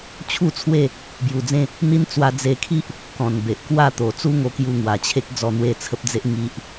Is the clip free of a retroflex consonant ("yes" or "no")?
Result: yes